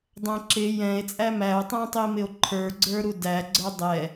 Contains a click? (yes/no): yes